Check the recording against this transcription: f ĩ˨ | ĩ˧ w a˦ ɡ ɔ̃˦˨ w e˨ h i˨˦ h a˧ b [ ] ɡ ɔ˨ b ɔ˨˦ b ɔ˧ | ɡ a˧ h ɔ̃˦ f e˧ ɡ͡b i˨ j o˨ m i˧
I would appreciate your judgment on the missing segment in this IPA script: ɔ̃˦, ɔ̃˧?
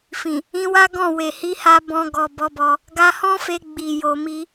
ɔ̃˧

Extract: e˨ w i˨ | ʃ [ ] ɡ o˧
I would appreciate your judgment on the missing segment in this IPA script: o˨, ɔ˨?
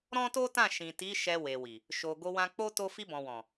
o˨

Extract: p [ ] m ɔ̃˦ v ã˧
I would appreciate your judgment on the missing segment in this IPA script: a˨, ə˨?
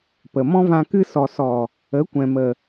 ə˨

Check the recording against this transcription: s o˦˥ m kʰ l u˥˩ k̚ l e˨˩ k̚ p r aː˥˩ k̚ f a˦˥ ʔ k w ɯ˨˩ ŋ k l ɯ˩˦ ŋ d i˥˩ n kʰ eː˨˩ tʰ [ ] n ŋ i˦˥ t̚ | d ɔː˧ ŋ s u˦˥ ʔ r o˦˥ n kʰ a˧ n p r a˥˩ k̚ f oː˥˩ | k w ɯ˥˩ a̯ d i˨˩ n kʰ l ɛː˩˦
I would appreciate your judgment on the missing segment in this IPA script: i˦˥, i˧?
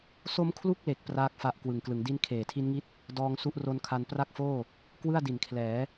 i˦˥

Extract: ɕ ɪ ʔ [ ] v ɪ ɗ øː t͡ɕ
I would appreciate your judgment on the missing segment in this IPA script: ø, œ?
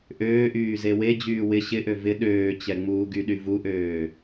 ø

